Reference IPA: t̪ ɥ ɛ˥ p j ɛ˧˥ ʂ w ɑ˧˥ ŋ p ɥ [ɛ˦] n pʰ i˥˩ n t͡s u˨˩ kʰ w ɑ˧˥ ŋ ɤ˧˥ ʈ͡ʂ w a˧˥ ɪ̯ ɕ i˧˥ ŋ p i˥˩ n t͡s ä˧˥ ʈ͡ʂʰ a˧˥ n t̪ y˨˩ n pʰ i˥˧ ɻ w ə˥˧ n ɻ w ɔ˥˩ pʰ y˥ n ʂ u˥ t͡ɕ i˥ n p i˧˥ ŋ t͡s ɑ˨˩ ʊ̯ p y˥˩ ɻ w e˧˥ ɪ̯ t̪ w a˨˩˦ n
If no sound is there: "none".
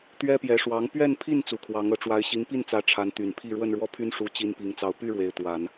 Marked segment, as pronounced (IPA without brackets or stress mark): ɛ˥˧